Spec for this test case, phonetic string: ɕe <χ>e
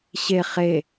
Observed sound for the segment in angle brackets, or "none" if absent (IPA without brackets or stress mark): χ